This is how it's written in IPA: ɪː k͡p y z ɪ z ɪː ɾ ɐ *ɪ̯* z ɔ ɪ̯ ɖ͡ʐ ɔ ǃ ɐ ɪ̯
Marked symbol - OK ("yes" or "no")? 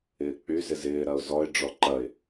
no